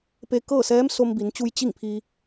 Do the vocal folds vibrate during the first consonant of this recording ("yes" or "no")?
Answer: no